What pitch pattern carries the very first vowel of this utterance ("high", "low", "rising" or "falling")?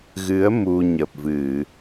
rising